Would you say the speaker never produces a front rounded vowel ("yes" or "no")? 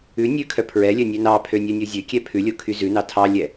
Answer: no